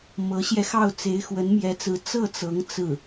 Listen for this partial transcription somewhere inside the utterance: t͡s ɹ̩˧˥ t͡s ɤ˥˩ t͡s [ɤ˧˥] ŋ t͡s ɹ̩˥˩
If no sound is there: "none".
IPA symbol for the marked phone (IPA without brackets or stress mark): ɤ˧˥